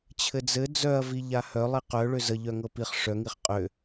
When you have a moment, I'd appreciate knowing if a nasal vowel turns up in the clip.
no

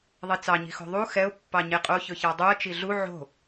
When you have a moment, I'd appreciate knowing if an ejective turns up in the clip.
yes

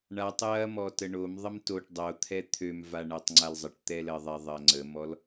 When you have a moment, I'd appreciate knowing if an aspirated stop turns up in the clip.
yes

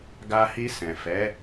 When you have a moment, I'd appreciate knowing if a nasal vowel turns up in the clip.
yes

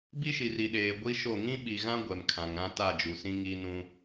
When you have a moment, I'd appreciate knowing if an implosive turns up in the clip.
yes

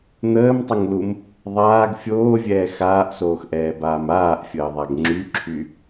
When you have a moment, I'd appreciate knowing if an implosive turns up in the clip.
no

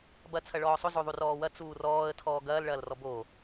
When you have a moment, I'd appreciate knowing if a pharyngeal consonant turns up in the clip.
no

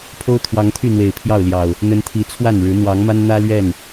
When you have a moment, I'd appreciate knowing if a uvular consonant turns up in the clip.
no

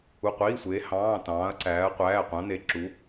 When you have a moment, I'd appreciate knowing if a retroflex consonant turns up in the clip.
no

